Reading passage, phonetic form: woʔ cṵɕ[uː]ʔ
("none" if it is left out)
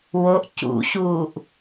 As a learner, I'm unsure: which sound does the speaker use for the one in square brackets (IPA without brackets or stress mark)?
uː